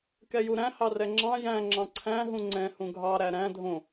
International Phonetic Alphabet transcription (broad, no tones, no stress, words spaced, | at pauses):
kɛjuɾæ̃ hɑrɛŋ͡ǁɑ̃ jæ̃ ŋ͡ǁɑ̃ǀʰæ̃ ɦũŋ͡ǀɛ̃ hũɡʱɑ ɾæɾæ̃ dʱõ